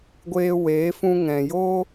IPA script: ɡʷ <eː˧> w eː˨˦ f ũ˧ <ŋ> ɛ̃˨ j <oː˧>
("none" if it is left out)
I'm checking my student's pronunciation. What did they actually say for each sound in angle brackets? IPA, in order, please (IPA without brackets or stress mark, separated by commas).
eː˧, ŋ, o˧